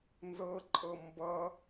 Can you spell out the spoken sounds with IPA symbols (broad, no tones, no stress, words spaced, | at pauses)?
nzɤǃʼɤ mbʌ